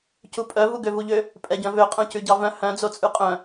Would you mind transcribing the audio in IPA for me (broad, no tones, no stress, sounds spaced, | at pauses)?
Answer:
c u pʼ œ v u ɡ ø v u ʎ ø | pʼ ɛ ɟ œ̃ v ø qʼ œ̃ c ʉ ɟ ɑ v œ̃ h œ̃ d͡z o t͡sʼ ʉ qʼ œ̃